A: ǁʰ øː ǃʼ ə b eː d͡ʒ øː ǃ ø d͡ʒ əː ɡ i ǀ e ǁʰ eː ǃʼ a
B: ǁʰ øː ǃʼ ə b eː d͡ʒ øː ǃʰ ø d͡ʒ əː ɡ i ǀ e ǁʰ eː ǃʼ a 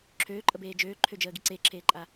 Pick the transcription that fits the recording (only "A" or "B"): B